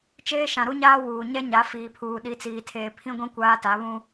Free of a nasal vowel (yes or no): no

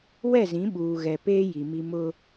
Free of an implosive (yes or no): no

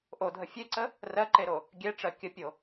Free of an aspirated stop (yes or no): yes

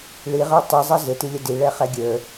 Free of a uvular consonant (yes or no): no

